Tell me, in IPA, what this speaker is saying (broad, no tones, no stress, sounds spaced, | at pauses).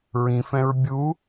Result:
ɹ ĩ f ɛ̃ ɹ bʲ u